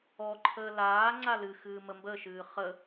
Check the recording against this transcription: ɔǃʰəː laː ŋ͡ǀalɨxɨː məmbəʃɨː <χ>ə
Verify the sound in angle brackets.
correct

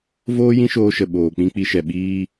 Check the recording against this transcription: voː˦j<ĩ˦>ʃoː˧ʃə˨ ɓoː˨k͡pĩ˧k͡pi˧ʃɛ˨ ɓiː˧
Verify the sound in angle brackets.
correct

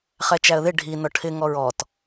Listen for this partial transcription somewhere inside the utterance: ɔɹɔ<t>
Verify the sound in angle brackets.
correct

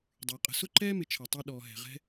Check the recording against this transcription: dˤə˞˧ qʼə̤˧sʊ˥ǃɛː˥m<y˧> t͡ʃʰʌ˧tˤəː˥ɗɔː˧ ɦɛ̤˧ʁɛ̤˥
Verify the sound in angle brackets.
incorrect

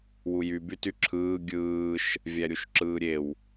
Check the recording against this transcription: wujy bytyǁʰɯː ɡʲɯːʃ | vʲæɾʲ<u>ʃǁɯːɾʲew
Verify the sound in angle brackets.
correct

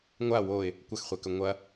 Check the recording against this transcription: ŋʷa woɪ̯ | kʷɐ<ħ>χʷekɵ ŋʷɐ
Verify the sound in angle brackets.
incorrect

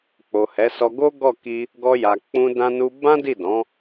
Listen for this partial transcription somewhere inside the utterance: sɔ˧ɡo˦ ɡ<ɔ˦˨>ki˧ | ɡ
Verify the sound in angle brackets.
correct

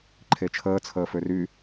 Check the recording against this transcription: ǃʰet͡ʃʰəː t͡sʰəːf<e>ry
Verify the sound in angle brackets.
incorrect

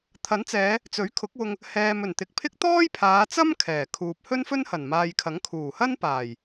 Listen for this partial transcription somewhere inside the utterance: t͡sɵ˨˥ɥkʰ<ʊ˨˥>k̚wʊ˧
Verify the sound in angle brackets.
correct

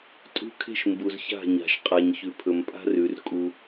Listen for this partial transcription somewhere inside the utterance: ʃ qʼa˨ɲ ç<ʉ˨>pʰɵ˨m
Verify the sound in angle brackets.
correct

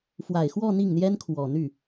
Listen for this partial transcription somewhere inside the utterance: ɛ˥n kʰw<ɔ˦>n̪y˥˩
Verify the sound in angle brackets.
incorrect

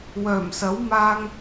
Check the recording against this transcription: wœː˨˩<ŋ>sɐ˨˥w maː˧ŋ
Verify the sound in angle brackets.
incorrect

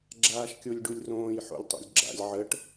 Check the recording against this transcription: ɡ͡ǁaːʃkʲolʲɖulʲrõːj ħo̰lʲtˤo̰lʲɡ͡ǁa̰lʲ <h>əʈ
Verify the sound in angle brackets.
incorrect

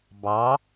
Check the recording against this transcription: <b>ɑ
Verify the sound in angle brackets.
correct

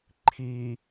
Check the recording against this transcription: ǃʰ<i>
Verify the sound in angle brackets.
correct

